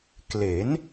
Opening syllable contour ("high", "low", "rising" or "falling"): rising